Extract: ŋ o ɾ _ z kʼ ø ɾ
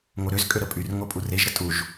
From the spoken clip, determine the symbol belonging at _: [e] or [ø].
ø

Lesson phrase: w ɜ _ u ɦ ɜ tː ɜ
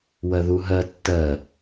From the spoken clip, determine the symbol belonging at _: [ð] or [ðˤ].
ð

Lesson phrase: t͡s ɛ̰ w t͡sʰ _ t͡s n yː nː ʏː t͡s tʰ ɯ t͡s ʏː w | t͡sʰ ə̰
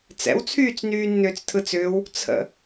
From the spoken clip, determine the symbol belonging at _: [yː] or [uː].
yː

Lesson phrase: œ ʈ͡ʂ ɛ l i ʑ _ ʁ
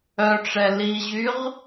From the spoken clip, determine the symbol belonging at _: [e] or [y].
y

